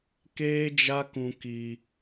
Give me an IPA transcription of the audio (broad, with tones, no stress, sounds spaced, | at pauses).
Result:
k eː˦ d͡ʒ a˦ k ũ˧ k iː˧